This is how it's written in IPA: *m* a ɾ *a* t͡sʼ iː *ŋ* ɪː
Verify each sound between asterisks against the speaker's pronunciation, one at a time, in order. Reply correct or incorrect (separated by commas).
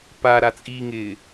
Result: incorrect, correct, correct